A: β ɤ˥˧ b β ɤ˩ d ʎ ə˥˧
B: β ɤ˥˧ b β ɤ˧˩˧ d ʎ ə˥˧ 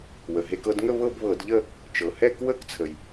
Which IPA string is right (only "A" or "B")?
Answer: B